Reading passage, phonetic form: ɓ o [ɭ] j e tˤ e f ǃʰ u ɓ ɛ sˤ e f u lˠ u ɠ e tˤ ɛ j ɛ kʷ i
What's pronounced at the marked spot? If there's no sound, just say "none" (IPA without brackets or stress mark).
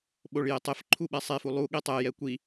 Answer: ɭ